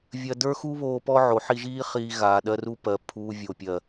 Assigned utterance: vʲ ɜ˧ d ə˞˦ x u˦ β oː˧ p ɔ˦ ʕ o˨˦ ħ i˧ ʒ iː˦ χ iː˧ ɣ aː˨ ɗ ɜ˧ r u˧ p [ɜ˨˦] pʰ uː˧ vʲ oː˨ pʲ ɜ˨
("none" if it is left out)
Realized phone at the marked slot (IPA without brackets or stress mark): ɜ˨